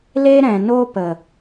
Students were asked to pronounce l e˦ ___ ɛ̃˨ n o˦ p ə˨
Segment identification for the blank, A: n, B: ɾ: B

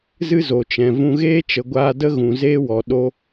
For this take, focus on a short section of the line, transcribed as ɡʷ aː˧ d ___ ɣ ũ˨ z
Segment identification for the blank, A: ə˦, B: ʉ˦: A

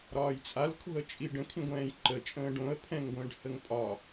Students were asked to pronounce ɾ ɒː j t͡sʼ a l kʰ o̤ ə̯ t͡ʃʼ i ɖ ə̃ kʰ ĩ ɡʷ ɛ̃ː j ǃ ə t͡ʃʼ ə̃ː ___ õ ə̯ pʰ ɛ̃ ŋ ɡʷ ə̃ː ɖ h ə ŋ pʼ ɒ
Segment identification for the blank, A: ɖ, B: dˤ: A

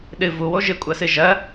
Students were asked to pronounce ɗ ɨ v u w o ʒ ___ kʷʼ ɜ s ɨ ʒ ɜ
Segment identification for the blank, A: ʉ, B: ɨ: B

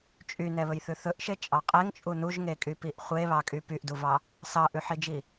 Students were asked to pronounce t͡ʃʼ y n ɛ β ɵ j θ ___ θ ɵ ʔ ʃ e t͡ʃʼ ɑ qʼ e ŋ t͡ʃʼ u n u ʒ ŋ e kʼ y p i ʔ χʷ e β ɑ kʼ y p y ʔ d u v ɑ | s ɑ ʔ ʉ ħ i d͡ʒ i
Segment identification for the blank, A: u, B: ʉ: B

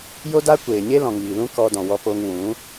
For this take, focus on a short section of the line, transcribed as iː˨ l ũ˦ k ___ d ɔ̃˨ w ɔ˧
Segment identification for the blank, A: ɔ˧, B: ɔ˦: A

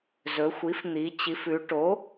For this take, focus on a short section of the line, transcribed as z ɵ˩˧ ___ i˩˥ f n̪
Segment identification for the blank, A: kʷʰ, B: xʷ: B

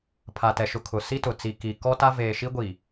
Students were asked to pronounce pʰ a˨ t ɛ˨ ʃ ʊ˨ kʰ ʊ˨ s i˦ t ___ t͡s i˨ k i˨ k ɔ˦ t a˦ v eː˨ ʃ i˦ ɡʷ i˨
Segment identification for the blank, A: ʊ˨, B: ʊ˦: A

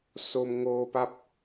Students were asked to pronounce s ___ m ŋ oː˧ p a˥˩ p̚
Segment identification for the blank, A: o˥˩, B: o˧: B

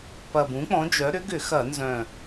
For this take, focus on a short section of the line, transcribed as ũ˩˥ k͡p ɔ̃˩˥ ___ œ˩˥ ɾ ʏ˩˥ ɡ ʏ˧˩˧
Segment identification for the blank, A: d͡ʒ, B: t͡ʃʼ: A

